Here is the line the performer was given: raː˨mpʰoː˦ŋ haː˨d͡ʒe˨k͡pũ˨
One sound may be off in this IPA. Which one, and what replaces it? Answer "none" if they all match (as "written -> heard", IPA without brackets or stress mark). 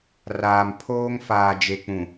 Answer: h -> f